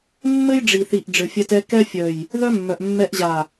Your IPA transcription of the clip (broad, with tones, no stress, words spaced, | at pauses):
mːɘ˦jɖ͡ʐi˨θi˨ʔ ɖ͡ʐɘ˨fʲɛ˧tɛ˧ kɛ˦ fʲœ˨j | ðœ˦mːœ˨ʔ mːɛ˧ʔʑa˨